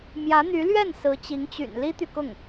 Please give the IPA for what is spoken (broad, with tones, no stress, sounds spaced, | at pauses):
m j ä˧˥ n̪ y˧˥ l ɥ ɛ˥˩ n s ɹ̩˧˥ t͡ɕ i˧˥ ŋ t͡ɕ y̰˨˩ n l i˥ t̪ y˨ k ʊ˥˩ ŋ